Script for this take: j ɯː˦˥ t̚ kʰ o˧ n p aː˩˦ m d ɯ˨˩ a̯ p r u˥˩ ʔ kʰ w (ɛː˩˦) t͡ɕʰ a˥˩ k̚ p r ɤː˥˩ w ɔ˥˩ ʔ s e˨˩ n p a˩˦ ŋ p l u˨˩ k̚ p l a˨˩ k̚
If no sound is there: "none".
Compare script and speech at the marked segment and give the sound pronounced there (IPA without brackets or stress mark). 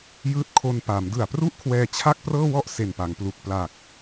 ɛː˧